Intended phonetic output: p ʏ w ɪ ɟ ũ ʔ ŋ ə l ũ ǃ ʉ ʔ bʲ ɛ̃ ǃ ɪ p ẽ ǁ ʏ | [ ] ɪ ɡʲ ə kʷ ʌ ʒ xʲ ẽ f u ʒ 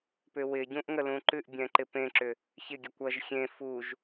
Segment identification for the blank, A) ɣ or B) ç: B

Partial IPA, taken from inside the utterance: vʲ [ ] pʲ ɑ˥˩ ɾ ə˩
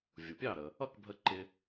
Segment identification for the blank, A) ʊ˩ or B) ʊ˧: A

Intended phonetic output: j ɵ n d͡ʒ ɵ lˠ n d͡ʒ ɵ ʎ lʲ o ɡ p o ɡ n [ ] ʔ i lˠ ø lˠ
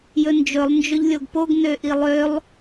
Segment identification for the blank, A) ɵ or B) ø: B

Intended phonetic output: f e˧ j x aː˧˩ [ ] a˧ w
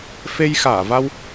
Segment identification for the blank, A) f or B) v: B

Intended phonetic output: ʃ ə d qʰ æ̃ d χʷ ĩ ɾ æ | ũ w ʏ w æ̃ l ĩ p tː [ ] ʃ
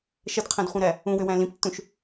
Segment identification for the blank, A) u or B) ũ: B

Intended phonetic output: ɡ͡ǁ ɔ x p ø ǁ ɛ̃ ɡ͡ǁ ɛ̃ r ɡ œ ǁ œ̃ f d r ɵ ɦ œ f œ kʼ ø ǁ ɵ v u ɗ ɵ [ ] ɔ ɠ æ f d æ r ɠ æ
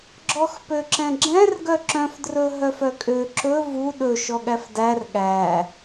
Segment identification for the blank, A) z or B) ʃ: B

